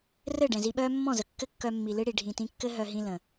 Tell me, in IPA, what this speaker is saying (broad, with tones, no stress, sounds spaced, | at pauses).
r ɘ˦˨ ɖ ɛ̃˨ z i˧ ɓ œː˦ mː ɔ̃˦˨ z ə˨ kː ɘ˦ kː œ˧ mː i˨ l ɨ˦ ɽ i˨ ɖʱ ĩ˨ t ĩ˧ kː ɘ˦ ɦ œ˧ ɦ ĩ˧ l ə̃˨